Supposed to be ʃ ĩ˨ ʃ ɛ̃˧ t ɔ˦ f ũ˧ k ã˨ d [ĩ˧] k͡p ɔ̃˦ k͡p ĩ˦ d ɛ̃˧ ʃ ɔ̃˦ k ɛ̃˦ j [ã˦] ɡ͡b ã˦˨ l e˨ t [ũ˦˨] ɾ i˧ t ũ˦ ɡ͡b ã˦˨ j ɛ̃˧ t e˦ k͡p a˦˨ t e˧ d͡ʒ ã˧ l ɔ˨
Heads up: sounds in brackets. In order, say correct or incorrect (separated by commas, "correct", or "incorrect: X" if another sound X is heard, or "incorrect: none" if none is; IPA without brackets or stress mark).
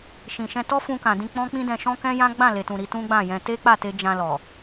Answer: correct, correct, incorrect: ũ˨